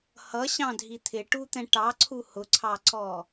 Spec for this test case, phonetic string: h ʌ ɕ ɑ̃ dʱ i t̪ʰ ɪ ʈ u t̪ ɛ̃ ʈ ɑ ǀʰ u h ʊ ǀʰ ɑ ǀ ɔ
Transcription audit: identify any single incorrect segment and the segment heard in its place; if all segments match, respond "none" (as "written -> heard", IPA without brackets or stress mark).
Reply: none